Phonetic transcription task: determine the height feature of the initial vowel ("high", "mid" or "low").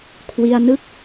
high